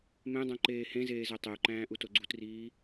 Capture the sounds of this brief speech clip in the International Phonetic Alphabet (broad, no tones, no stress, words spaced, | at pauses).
mẽdˤõ ǃeːhẽzeː zætˤeu̯ǃæ̃ː ʔutoɡ͡ǀutriː